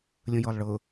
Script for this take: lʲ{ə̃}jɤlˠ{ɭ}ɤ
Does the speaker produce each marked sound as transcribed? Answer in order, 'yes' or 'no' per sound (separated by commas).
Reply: yes, yes